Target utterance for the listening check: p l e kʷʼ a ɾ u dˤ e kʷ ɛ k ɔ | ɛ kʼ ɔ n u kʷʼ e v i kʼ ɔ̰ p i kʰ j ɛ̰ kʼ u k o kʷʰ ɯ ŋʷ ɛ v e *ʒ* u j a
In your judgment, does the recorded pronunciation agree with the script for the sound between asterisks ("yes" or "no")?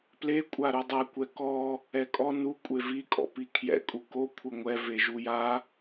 yes